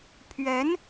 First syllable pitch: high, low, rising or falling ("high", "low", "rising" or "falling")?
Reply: rising